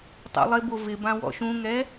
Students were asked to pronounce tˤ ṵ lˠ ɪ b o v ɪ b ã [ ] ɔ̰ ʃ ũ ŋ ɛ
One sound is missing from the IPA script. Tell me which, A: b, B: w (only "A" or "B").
B